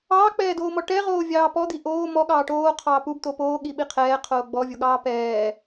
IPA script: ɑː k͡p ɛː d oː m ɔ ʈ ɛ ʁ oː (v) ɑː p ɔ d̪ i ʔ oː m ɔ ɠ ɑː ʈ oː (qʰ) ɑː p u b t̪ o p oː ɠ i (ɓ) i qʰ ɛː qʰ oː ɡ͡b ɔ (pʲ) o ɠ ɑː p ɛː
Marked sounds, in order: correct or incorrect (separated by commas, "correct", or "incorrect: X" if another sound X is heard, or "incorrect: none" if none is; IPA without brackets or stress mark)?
incorrect: vʲ, correct, correct, incorrect: vʲ